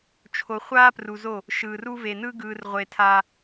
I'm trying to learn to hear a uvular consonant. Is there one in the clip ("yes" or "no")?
yes